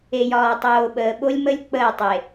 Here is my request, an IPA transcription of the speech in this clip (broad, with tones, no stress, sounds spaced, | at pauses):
e˨ j ɒː˨ tˤ oː˨ ɓ əː˨ ɓ o˦ lʲ m ə˦ lʲ k͡p əː˦˨ tˤ e˨